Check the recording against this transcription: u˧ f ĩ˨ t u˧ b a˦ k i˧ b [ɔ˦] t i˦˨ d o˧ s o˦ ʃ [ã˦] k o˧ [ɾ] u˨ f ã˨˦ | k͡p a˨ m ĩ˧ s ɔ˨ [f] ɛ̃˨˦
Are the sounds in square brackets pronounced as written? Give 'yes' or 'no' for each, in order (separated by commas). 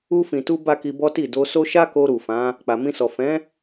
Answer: yes, no, yes, yes